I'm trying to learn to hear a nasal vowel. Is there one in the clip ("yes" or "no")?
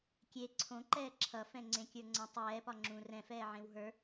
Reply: yes